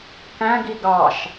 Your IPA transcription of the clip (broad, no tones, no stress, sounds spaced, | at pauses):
k æ̃ ɡ i ɡ ɑ ʃ